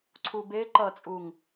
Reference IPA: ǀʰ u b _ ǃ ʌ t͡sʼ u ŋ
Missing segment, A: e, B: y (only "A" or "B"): A